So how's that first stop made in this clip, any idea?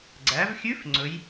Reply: click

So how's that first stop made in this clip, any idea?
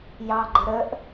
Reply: click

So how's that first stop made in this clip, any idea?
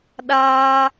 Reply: implosive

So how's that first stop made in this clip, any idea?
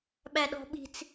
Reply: implosive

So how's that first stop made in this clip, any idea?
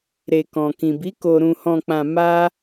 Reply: plain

